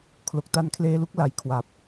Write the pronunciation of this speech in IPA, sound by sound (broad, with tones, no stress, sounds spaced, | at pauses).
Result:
kʰ l o˨˩ k̚ t a˦˥ n kʰ l eː˧ l u˦˥ k̚ l a˩˦ j kʰ w a˨˩ p̚